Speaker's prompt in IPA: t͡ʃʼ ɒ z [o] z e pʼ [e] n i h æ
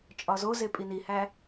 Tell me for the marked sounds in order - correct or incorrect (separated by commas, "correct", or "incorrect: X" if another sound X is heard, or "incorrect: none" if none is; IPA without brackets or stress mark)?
correct, incorrect: i